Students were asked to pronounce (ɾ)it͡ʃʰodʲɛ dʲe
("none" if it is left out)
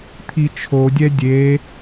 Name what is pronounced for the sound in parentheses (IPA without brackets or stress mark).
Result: t̪ʰ